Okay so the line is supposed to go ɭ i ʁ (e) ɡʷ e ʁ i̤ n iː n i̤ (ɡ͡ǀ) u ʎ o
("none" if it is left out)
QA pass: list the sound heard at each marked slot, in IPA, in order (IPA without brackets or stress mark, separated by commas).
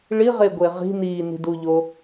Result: e, d